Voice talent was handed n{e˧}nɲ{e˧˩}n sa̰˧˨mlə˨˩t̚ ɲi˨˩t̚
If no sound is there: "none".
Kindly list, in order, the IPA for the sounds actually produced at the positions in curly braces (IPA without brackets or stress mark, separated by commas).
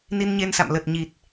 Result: i˧, e˧